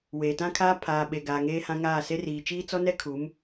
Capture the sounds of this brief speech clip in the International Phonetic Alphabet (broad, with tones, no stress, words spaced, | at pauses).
weː˨tã˦kʰaː˦ pʰaː˨ ɓe˨ɡaː˨ ŋeː˦hã˦ ŋaː˦˨se˦r iː˨t͡ʃiː˦ t͡sɔ˦nɛ˦kʰu˨˦m